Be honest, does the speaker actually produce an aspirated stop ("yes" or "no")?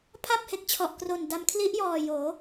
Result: yes